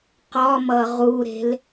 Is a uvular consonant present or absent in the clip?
present